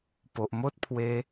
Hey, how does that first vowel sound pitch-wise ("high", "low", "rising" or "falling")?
low